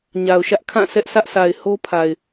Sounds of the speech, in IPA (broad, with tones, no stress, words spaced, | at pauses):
ɲa˨ʊ̯ʃä˦ʔkʰã˦˨ sɛ˦ʔsʰä˦ʔsʰa˨ɪ̯ ho˦pʰa˨ɪ̯